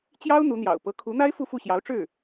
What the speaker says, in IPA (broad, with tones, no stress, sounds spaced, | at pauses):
t͡ɕ j ɑ˥ ʊ̯ n̪ u˧˥ n̪ j ɑ̰˨˩ ʊ̯ p ɤ˧˥ kʰ u˧˥ n̪ a˥ ɪ̯ f u˥˧ f u˥˩ ɕ j ɑ˧˥ ʊ̯ ʈ͡ʂ ɻ̩˥˩